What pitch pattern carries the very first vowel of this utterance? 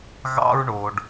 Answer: high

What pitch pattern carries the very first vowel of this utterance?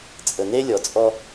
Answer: low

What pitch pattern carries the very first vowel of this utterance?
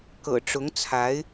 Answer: low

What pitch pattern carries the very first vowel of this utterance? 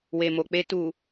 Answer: low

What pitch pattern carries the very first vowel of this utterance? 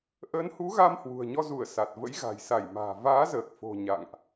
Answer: rising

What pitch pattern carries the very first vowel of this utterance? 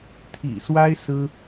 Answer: low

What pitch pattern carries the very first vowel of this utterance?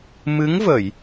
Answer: rising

